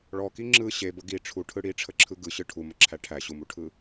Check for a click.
present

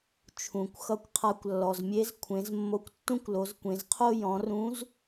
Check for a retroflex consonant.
absent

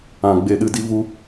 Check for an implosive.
present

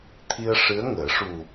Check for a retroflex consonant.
present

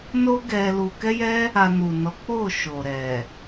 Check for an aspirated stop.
absent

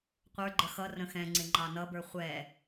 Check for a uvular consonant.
present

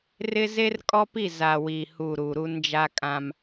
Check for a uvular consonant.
absent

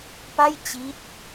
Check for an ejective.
absent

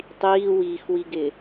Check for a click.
absent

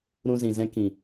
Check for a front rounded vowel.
absent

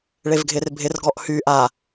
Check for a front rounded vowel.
present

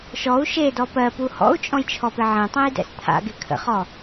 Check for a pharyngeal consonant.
present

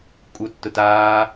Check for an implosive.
absent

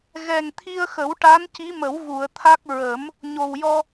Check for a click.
absent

